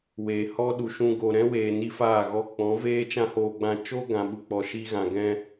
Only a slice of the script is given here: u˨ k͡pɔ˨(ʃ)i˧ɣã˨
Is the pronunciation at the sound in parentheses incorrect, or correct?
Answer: correct